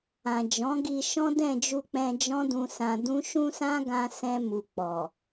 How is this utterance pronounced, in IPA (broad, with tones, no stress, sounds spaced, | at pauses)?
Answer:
ã˨ d͡ʒ ɔ̃˨˦ ɡ i˧ ʃ ɔ̃˦ d ɛ̃˦˨ d͡ʒ u˧ k͡p ɛ̃˧ d͡ʒ ɔ̃˦ d ũ˧ s ã˧ d ũ˦ ʃ ũ˦ s ã˦ ɡ ã˦ s ɛ̃˧ m u˨ k͡p ɔ˨